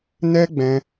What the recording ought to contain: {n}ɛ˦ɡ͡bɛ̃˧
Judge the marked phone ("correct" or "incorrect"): correct